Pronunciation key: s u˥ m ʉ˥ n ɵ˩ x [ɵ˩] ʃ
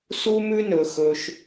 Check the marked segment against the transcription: correct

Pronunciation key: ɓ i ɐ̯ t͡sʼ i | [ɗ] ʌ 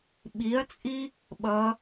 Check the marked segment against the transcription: incorrect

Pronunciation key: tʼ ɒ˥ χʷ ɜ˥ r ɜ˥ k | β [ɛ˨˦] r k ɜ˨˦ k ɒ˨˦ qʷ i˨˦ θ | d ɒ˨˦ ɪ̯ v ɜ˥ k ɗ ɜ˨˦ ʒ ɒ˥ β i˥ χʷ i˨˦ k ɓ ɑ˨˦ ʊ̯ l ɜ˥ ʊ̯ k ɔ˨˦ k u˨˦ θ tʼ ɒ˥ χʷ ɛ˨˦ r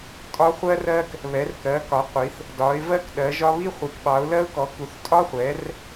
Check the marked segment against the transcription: correct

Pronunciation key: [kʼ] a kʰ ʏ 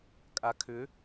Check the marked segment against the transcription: correct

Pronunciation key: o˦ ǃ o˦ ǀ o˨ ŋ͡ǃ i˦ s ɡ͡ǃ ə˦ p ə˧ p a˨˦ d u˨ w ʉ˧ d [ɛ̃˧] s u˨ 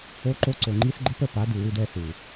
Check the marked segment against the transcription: incorrect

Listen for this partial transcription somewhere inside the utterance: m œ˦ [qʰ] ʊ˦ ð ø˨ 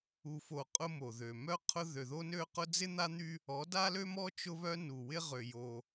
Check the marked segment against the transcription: correct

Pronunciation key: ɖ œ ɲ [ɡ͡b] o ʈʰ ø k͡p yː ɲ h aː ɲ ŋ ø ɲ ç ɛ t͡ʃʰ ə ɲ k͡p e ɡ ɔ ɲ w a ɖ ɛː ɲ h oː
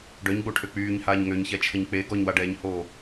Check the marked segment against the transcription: correct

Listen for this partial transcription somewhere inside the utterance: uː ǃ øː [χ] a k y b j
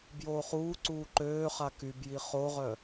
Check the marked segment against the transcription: correct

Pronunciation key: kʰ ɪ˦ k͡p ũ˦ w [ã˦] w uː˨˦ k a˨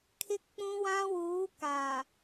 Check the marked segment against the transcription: correct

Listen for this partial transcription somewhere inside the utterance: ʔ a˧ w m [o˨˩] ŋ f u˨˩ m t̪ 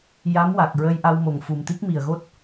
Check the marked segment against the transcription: correct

